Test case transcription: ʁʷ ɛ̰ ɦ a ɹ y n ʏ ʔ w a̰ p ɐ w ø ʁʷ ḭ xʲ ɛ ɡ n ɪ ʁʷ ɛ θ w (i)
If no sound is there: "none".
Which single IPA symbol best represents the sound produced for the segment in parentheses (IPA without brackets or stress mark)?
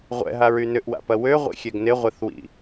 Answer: ḭ